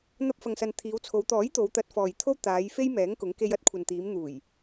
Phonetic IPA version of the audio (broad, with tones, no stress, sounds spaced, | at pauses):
n̪ ɐ˧ p̚ f ɐ˨ ŋ s ɐ˨ n t̪ʰ iː˨˧ w t͡sʰ o˨˧ w t̪ ɔː˨˥ j t̪ o˨˧ w t̪ ɐ˨˥ t̚ f ɔː˨ j t̪ʰ o˥ w t̪ aː˨˧ j f e˥ j m ɛː˨˥ ŋ k ʊ˨˥ ŋ k e˧ j ɐ˥ t̚ kʷʰ ɐ˨ n t̪ iː˨˧ m n̪ uː˨˩ j